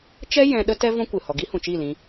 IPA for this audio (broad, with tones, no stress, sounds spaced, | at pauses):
t͡ʃ ɛ˦ j ɛ̃˧ ɗ ə˦ t ɛ˦ v ɔ̃˦ kʷ ɨ˨ h ɔ˨ ɡ i˦ h ũ˨ t͡ʃ i˦˨ l ĩ˧